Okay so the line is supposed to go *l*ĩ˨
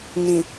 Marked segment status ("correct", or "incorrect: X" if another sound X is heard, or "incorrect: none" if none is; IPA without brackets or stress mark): incorrect: n